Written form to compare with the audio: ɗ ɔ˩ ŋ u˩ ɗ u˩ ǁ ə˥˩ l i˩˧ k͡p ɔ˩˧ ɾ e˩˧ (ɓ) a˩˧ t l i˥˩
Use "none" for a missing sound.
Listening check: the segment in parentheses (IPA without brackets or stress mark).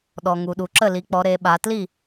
ɓ